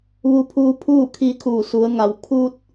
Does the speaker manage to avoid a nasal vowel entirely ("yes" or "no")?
yes